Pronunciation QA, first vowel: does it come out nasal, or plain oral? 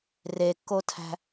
oral